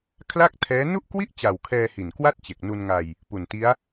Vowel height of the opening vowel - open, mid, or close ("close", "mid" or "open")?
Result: open